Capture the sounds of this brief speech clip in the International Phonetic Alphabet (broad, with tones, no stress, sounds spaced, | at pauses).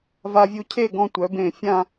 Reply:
v a˧ vʲ u˧ cʰ e˥˧ ɡ ɔ̃˧ tʷ œ˩˧ b ẽ˧˩ fʲ ã˥˧